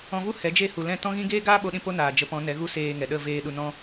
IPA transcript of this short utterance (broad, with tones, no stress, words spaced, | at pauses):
ɔ̃˧vu˦ hɛ˨˦d͡ʒe˦˨ hu˨lɛ̃˦˨tɔ̃˦ɣĩ˦ ɡeː˦ɡaː˦ɓo˧ɗĩ˧ po˦naː˨ d͡ʒə˨˦pɔ̃˨˦nɛ˨˦ɣu˦ seː˧ŋɛ˨ ɗə˦˨veː˧ ɗu˧nɔ̃˦